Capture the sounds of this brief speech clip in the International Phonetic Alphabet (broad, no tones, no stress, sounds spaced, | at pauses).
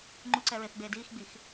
ŋ͡ǃ u ǀ ɛ ɹ e θ ɡ͡b eː d iː x ɡ͡b i x